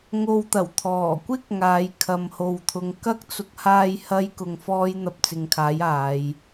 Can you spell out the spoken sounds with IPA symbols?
ŋo˧wt̪ɐ˨˩w t̪ʰɔː˨˩kʷɪ˥k̚ ŋaː˨˧jkʰɐ˨mho˨wt̪ʰʊ˨˧ŋ kɐ˥k̚t͡sʊ˨˥k̚haː˧j hɐ˥j kʊ˧ŋfɔː˥j n̪ɐ˧p̚t͡sɪ˨˧ŋkʰaː˨˥j aː˨˧j

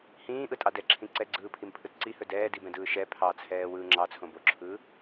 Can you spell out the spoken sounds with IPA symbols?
hĩːʔɯtʼɑ dɛǁʰĩ ǀɛɡ͡ǀɯːpʰimpʰɯt ǀihɵ dɛːdibɛ̃dɯː ʃɛ pʰɑt͡sʰɛːwɯː ŋ͡ǁɑt͡sʰõ boǁʰɯː

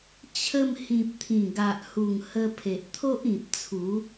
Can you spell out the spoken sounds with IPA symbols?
t͡ɕʰə˧m hĩ˨p̚t̪ʰĩ˨˩ɡa˨ʔhu˨˩ŋ hə˧pʰe˨ʔt̪ʰo˦ʔ ĩ˨p̚t͡sʰu˨˦

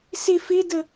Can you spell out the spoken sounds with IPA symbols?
sɪ fɪdə

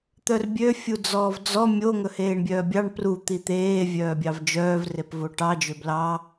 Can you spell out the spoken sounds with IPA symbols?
t̪œrbʲø fʲud͡zɔːvd͡zɔ mʲo ŋɵheːɳbʲœːbʲɑɳ pru t̪it̪eː vʲœːbʲɑvd͡ʒœːv repvoʈɑ d͡ʒøblɑ

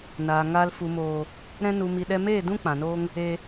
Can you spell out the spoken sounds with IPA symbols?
naː˨ŋaː˧l fu˨moː˨ | ɾɛ̃˧nu˨mi˨ ɗɛ˧meː˦˨ dũ˦ k͡pã˨ noː˧ŋ | e˧

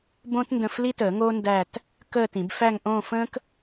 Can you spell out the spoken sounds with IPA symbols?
bõ˥t ndə̃˥˧f li˥təː˨˩˦ ŋo˥ ndæ˥˧t | kəː˥˧tĩ˨˩˦b fæ˥˧ŋʔõː˥˧ fə̃ː˥k

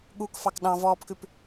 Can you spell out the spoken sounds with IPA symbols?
ɠuk fɑkɗɑ̃vɔːpkʉp

